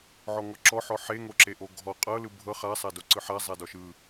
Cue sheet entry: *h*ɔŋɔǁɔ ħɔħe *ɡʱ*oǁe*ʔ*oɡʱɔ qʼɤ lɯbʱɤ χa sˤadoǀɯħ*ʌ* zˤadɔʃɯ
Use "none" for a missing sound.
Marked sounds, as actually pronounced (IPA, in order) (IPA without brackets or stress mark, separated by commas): ʕ, ŋ, ʔ, a